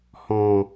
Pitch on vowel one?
low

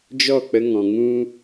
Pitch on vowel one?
falling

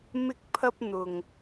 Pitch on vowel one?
high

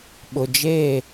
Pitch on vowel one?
low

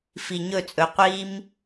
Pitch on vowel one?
low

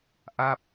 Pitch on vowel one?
falling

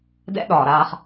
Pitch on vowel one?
high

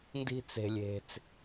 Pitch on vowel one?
high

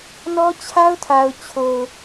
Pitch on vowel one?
high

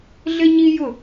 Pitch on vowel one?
high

